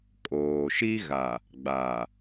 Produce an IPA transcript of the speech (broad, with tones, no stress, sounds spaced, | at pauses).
kʼ oː˨ ʃ i˦ ɣ a˨ | ɡ͡b a˨